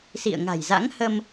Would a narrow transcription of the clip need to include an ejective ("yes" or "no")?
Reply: no